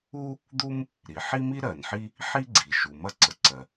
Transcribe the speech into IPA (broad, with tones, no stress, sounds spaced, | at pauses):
u˥ | d̪ u˥ m | ɾ i˩ ħ i˥ m i˥ ɾ ɜ˩ n ħ i˥ | ħ i˥ ɡ͡ǀ i˩ ʃ u˩ m ɐ˥ ǀ ə˩ ǀ ɜ˩